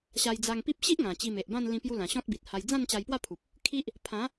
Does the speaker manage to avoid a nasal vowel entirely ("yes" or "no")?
no